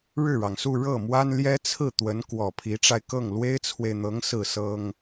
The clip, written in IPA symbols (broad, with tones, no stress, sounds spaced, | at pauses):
ɻ ɻ̩˥˩ ɻ ɑ˩ ŋ s u˥˧ ɻ ɤ˥˩ m w a˥ n l j ɛ˥ t͡sʰ ɹ̩˥˩ t̪ w ə˧˥ n k w ɔ˨˩ pʰ i˧˥ ʈ͡ʂ a˧ ɪ̯ k ɤ˥˩ ŋ l w e˥ ɪ̯ t͡sʰ w e˨ ɪ̯ n̪ ɤ˧˥ ŋ s ɹ̩˥˩ s ɤ˥ ŋ